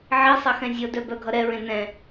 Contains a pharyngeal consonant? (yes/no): yes